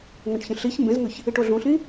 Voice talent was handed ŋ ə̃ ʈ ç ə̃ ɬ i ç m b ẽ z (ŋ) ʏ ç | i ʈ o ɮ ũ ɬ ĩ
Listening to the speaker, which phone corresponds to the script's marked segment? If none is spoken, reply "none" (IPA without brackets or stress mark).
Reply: ŋ